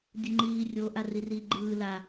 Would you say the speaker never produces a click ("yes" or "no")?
no